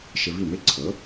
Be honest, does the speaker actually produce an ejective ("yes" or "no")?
no